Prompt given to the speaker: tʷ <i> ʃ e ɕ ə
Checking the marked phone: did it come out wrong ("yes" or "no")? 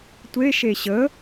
yes